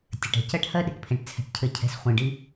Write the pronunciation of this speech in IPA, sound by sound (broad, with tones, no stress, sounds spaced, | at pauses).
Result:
tʲ ɘ˨ ʈ ɛ̤˨ c ɜ˦ ʈ h ɜ˦ ɗ i̤˨ ʈ pʰ ẽ˨ ʈ t͡sʰ ɛ̤˨ ʈ cʰ ɘ˨ cʰ ɛ̤˨ s χʷ ĩ˨ ɖ i˦